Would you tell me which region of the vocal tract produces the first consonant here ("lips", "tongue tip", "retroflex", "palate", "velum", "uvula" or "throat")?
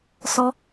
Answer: tongue tip